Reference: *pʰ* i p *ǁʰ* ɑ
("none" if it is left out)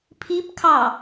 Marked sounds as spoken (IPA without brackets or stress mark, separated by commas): pʰ, kʰ